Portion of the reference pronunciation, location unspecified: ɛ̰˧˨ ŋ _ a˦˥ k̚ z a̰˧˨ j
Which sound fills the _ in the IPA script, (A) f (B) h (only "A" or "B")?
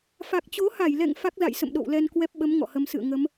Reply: A